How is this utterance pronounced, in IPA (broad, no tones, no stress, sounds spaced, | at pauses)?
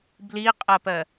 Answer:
b l i qʼ ɜ p ɜ